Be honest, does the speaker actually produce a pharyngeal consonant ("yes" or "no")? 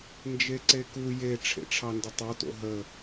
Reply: no